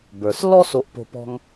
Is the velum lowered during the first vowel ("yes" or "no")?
no